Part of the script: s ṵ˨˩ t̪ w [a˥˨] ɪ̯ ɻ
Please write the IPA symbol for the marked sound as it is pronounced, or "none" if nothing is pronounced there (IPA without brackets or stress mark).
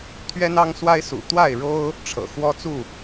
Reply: a˥˨